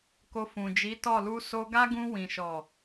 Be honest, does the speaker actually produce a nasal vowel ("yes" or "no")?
yes